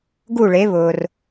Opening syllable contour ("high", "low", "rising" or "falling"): falling